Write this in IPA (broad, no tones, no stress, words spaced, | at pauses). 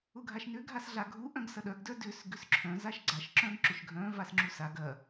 ʊɡʱaʃnʏ ɡʱasɮaɡʱu ʔœ̃ɡsɐɗœɡ dœdʏs ɡʏsǁʰœ̃ zaʃɡ͡ǀaʃ ǁœ̃ɡǁʏʃɡʱœ̃ vasŋ͡ǁusaɡ ɐ